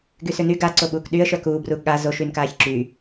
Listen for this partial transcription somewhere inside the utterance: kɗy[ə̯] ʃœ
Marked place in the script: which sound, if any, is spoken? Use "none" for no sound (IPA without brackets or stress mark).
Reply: ə̯